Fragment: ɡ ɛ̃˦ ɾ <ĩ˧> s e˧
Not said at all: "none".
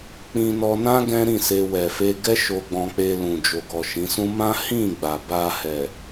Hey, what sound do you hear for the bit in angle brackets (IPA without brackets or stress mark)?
ĩ˦˨